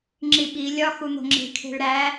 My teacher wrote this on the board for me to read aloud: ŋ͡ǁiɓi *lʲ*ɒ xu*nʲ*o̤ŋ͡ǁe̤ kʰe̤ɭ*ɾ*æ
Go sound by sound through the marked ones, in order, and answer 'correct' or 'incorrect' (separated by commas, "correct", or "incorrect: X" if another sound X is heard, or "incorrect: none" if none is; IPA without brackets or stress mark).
correct, incorrect: n̪, correct